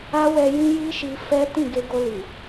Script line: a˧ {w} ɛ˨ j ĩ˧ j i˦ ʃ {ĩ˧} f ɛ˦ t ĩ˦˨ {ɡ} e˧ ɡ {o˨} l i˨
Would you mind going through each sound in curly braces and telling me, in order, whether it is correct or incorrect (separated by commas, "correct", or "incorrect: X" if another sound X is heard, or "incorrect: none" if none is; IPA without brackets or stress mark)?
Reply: correct, incorrect: i˧, correct, incorrect: o˧